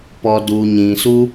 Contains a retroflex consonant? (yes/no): no